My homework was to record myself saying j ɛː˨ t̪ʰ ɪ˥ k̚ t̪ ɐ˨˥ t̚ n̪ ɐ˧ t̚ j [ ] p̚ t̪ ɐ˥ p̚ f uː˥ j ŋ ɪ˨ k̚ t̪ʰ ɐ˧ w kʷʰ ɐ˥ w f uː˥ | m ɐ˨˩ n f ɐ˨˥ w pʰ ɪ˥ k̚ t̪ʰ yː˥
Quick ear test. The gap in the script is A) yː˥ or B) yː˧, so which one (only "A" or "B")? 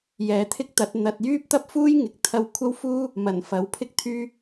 A